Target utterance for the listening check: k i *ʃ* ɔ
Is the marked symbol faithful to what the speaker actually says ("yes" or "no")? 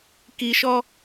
yes